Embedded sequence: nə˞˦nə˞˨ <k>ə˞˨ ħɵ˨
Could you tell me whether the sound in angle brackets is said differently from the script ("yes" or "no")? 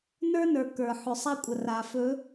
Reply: no